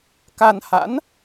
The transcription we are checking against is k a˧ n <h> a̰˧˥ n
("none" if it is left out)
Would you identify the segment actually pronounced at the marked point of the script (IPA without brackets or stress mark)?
h